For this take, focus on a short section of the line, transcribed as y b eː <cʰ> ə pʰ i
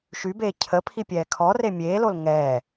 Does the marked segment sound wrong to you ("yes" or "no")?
no